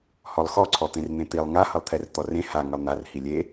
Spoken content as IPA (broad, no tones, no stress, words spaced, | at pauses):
hɔlˠxɔǀʰɔt̪ẽr n̪ẽt̪ilˠ ŋahʌlˠt̪ʰɛr t̪ɔrẽ ha ŋʌlˠn̪ar hilʲe